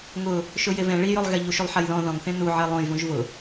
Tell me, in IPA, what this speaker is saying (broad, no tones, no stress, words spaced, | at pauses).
ŋʊ | ʃʊjevɛ̃ ɭijʊlˠɣɛ ʎuʃulˠħajðɔ̃ ðɔ̃ŋθẽ nuʕe lˠõjvũʒ vʊ